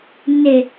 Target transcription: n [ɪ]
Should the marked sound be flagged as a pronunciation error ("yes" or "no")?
no